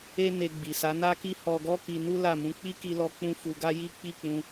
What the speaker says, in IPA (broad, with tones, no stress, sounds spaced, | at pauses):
e˦ n e˧ ɡ͡b i˨ s a˨˦ n a˦ k i˦ h ɔ˧ ɡ ɔ˦ k i˧ n u˦ l a˦˨ m ũ˧ k͡p i˦ k i˧ l ɔ˧ k͡p ũ˧ f u˧ ɡ a˦ j i˦ k͡p i˦˨ k͡p ũ˧